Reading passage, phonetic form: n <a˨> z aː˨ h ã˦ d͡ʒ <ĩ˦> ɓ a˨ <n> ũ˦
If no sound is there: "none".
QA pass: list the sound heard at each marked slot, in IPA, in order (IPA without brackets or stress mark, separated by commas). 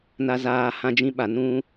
a˨, ĩ˦, n